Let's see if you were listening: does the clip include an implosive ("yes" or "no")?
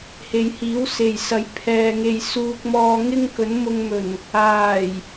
no